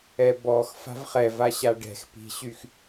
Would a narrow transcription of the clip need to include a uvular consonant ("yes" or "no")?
yes